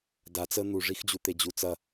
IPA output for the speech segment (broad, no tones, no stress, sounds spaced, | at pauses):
d a t͡s ə n̪ u ʐ i x d͡ʑ u t̪ e d͡ʑ u t͡s ɐ